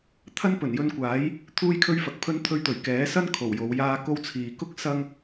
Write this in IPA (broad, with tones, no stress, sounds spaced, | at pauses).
t̪ʰ ɐ˥ n p ɵ˨˩ n j ɵ˧ n kʷ aː˨˥ j | t̪ʰ uː˥ j kʰ ɵ˥ ɥ f ɐ˨ k̚ pʰ ɵ˥ n t̪ʰ ɵ˧ ɥ t̪ ɵ˨˩ ɥ k ɛː˨˥ s ɐ˥ n kʰ o˨˩ w j o˨˧ w j aː˥ k o˥ w t͡sʰ iː˨ k ʊ˥ k̚ s ɐ˥ ŋ